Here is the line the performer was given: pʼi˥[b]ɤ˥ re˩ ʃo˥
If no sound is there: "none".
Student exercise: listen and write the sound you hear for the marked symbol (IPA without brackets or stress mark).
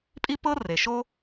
p